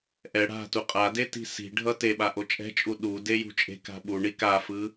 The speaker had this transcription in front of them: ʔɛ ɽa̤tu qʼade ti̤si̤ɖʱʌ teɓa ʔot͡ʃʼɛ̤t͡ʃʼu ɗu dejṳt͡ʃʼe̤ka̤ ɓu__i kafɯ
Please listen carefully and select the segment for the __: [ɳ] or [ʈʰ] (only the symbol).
ɳ